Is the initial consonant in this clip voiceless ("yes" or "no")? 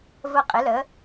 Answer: no